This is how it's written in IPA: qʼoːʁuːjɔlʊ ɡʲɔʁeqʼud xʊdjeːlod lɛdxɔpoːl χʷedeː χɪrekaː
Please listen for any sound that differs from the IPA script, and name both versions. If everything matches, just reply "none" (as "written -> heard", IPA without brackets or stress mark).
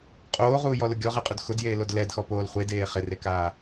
none